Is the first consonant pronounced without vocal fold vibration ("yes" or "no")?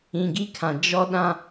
no